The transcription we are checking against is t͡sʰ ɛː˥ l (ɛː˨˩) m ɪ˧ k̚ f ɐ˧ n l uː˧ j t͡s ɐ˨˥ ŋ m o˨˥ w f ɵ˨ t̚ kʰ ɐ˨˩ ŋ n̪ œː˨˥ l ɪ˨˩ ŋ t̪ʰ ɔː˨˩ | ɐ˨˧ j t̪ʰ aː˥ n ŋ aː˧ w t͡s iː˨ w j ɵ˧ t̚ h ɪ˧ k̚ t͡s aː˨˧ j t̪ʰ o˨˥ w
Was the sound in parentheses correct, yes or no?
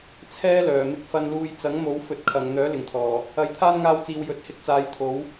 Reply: no